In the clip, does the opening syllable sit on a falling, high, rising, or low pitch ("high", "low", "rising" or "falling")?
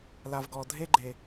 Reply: low